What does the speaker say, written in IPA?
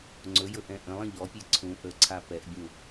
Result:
ŋ͡ǀ ɵ j ɵ ʔ ɛ̃ ʔ ə̃ lˠ ə̃ ʎ ɔ pʲ e ǀʰ ũ ʔ ə ǀʰ a p ɛ ʔ bʲ ũ

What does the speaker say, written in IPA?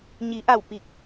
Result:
ɲ i˩˧ ʔ a˧˩ w p i˧˩ k̚

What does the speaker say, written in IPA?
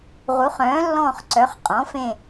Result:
ʁ u˩˥ χ œ̃ː˩˥ lː ɔ̃ː˦˨ χ ǀ œ˩˥ χ qʼ ɔ̃˩˥ f ẽ˦˨

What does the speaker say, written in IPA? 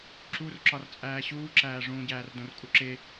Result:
ǁ u r ǁ ɒ r t͡sʼ æː ɕ uː ǁ æː ʐ ũː ɟ æː r d õ r kʼ u ǁ e

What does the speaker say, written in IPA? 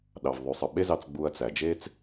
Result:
ɗ ɑ˨ v ðˤ y˨ sˤ ɯ˨ ɓ e˦ z ɑ˧ t͡s ɡ͡b u˧ ɐ̯ t͡s æ˨ d͡ʒ e˦ t͡s

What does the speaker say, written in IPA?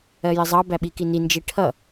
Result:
ɜ j ɪ zˤ ɑ b æ ɓ i k i n i n d͡ʒ i ʈʰ ʌ

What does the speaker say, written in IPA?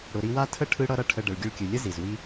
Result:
ɽ ʊ˨ ɾ i˧ w a˦ tʰ ə˦ ʈʰ ɯ˦ ɽ ʌ˦ ɾ ʌ˦ ʈʰ ə˧ ɖ ə˨ ɭ ɡʲ ɯ˧ ɭ kʲ ɯ˨ lʲ ə˦ z i˨ z w i˦

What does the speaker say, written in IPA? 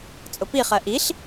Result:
t͡sʼ ʊ p i χ ɜ ʔ i ɬ

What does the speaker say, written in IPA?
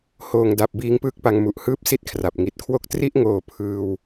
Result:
h oː˨˩ ŋ d a˨˩ p̚ b iː˦˥ ŋ p ɯː˥˩ k̚ p a˧ ŋ m u˨˩ ʔ h ɯː˥˩ p̚ s i˥˩ t̚ kʰ r a˨˩ p̚ ŋ i˨˩ t̚ kʰ w o˥˩ k̚ t r i˥˩ ʔ ŋ oː˨˩ pʰ ɯː˧ w

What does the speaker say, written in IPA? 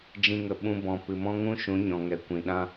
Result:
d͡ʒ ĩ˧ ŋ ə˨ ɓ ũ˧ b ɔ̃˨ p ɨ˨ m ɔ̃˦ ŋ ũ˦ ʃ ũ˨˦ ɲ ɔ̃˨ ŋ ɛ˨ kʷ ĩ˨ ɗ ã˦

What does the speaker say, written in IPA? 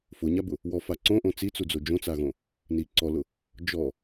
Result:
f ʊ ɲ a b ʊ | w ɔ f a ǀ õ ʔ õ t͡s i t͡s u d͡z o d͡ʒ õ t͡s a ɣ õ | n i ǀ ɔ l ʊ | d͡ʒ ɔ

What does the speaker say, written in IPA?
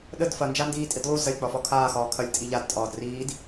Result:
ɗ ə d f ɐ n d͡ʒ a n d iː tʼ i d lˠ u z ɐ lʲ k͡p ɒ f ɒ kʰ aː x ɒː kʰ ɐ lʲ tʼ i ʎ a d tʼ ɒː d r iː d

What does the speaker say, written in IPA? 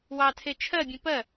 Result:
w ɑ tʰ e t͡ʃʰ ɜ bʲ ẽ p ɜ

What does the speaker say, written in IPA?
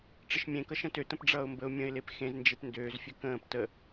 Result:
ʈ͡ʂ ə ʃ mʲ ẽ k ʌ ʃ ə̃ t ø t ə̃ p ɖ͡ʐ ʌː ʊ̯ m b ə ʊ̯ mʲ ə̃ ɪ̯ l e p x ẽ z n d͡ʒ e p n d øː z fʲ ø k ə̃ː p t ə

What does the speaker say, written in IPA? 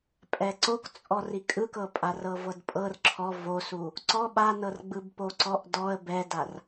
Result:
pʼ ɛ ǀ o k t͡sʼ ɔ r i kʼ ɯ k ɤ pʼ a r ɤ v ɤ d pʼ ɤ r ǁʰ ɔ v o s u | ǀ ɔ ɓ a n ɤ r ɡ͡b ɯ b p o ǀ ɔ ʔ d ɔ ə̯ b ɛ d a r

